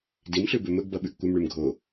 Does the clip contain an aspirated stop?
no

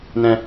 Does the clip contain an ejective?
no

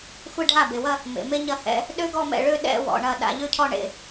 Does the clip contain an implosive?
yes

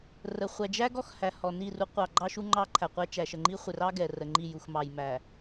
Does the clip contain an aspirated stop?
yes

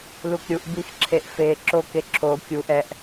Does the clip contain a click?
yes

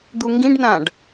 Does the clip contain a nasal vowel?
yes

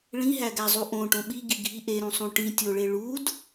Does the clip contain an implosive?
yes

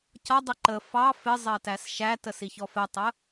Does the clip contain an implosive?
no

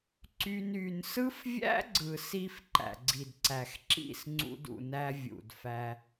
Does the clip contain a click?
yes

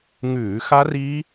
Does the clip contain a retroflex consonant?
no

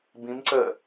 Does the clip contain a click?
yes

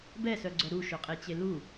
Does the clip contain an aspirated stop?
no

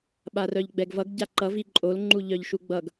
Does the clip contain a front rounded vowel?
yes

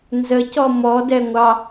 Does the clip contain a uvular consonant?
no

